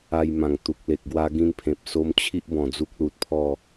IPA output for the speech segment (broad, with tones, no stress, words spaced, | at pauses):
a˧jmã˨˩ŋ t̪u˨k̚le˨k̚ ɡwa˧ɡĩ˧npʰẽ˨p̚so˧m t͡ɕʰi˦ʔbɔ̃˨˩ d͡zu˦k̚lu˨t̚pʰɔ˥˧